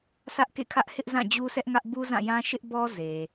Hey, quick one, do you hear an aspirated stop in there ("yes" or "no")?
yes